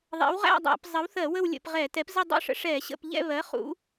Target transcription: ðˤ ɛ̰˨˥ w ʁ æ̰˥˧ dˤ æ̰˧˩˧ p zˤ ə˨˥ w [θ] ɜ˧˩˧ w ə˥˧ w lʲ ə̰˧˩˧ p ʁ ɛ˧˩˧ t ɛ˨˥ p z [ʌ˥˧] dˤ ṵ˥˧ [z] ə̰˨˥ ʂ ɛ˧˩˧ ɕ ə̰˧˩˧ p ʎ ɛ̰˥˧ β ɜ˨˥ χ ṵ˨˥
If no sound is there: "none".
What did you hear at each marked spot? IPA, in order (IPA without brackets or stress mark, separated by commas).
θ, ə˥˧, ʂ